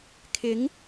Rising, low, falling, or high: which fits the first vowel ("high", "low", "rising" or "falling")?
rising